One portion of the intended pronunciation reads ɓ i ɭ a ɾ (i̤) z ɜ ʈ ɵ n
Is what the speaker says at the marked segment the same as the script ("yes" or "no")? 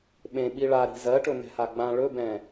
yes